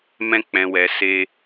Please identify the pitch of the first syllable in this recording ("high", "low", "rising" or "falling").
high